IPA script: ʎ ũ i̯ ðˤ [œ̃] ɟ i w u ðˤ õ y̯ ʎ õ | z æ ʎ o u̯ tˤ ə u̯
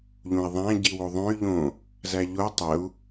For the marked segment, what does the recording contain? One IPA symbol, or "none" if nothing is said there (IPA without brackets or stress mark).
æ̃